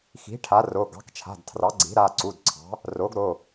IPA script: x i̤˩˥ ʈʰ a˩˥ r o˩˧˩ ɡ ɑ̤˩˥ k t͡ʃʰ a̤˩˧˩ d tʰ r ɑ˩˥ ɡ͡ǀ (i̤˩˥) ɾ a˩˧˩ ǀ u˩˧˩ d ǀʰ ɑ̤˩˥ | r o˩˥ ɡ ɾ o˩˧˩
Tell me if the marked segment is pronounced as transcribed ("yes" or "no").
yes